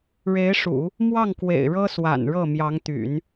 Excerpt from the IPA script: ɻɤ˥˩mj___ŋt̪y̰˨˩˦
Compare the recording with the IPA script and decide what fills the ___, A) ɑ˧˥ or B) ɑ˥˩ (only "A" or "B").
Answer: A